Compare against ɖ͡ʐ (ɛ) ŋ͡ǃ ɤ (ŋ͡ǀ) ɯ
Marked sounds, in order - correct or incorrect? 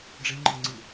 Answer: incorrect: e, correct

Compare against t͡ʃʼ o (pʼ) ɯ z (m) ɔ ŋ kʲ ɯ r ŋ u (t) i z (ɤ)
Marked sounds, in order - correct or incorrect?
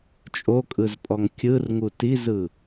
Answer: incorrect: kʼ, incorrect: pʼ, correct, incorrect: ɯ

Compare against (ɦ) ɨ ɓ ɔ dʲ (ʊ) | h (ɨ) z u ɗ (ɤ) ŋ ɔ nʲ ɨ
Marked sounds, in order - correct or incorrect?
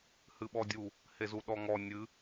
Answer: incorrect: h, incorrect: u, incorrect: e, incorrect: ɔ

